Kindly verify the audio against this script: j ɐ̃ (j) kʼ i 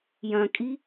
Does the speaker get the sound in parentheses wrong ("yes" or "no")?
yes